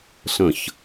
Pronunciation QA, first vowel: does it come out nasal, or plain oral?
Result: nasal